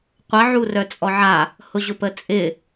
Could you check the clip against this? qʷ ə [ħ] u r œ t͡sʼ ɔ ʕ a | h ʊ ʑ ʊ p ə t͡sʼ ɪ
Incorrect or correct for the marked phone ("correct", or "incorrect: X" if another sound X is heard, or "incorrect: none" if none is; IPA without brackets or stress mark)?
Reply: incorrect: ʕ